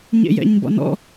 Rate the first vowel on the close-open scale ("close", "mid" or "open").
mid